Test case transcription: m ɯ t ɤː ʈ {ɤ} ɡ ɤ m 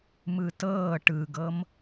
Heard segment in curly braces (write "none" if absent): ɯ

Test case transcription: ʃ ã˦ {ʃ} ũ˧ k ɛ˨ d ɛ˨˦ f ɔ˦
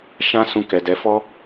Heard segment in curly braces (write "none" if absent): s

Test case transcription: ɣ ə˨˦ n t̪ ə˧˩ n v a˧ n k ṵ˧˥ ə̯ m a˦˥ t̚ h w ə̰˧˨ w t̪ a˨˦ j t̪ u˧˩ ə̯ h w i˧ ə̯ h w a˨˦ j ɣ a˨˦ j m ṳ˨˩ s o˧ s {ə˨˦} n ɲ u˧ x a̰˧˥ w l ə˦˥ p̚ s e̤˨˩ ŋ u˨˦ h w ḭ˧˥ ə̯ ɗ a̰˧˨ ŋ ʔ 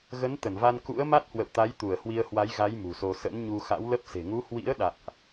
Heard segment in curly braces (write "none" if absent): ə̰˧˥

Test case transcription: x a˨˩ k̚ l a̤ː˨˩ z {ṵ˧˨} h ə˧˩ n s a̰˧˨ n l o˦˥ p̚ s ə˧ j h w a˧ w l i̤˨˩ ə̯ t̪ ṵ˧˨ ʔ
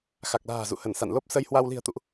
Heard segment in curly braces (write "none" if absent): ṵ˧˨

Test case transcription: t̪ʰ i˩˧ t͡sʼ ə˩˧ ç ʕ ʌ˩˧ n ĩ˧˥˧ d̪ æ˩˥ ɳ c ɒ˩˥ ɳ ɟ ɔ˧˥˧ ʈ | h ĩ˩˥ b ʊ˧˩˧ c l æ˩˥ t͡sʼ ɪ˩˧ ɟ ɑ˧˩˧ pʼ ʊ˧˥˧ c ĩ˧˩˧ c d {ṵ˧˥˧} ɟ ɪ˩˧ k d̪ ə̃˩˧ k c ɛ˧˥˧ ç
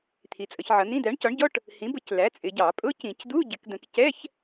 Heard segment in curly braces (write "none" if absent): u˧˥˧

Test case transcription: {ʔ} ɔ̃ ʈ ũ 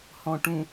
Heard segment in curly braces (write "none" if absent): h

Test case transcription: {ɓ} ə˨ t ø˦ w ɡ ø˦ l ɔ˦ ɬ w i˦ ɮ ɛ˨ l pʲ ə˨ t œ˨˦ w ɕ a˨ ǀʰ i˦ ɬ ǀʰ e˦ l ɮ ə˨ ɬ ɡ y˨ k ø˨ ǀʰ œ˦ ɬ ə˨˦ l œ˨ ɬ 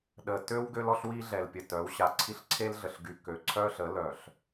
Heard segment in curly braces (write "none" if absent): ɗ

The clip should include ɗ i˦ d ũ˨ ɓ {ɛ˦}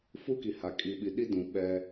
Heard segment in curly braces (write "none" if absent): ɛ˦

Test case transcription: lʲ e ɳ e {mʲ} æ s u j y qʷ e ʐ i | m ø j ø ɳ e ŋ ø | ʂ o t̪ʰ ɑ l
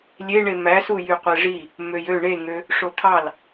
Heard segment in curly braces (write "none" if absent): m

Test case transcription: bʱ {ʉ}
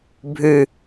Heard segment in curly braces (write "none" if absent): ʉ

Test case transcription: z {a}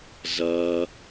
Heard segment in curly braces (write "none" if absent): ɐ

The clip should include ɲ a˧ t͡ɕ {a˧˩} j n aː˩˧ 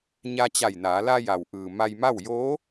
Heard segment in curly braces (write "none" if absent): a˧˩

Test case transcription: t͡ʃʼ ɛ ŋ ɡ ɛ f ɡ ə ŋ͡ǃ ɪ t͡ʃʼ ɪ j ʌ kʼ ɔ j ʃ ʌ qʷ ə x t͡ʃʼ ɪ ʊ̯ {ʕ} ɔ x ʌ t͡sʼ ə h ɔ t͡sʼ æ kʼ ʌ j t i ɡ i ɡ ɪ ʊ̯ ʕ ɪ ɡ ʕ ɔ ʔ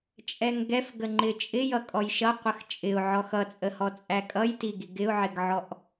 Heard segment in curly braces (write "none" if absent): ʕ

